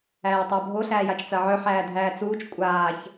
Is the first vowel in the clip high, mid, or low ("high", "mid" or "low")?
low